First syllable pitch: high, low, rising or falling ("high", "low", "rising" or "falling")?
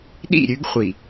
falling